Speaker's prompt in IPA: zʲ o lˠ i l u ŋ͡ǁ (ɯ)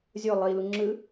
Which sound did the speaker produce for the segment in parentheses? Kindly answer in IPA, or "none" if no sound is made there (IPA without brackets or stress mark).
ɯ